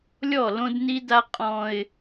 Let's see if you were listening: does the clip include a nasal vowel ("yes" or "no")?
yes